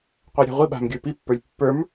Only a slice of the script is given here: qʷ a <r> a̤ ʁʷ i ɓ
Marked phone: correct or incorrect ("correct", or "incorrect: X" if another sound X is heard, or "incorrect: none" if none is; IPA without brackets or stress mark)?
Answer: incorrect: ɾʲ